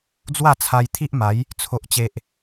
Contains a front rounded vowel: no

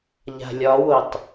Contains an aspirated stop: no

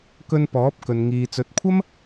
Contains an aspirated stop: yes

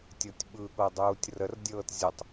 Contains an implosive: yes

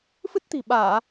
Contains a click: no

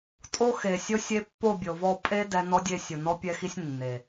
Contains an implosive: no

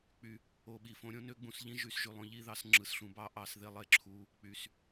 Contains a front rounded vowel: yes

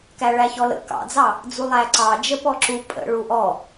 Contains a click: yes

